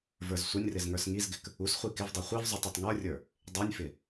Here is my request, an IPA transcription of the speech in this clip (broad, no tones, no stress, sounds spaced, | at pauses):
v ə˞ z sʷ ə nʲ r ɪ z ŋ ə˞ s ŋ i z ɡ ɪ k | u s χʷ i k ɪ v dˤ u χʷ i v zˤ u tˤ i tˤ ŋ ə˞ rʲ ə˞ | dˤ i nʲ f ɪ